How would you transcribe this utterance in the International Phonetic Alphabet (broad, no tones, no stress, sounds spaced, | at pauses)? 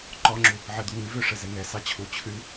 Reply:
ǃ ɔ ŋ͡ǁ u | ʕ ɘ d̪ u ŋ ʉ v ø ʂ ɘ z ɛ ŋ ɛ s ɑ t͡ɕʰ u t͡ɕʰ ʉ